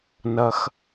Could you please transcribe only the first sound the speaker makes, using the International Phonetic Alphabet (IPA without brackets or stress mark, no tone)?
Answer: n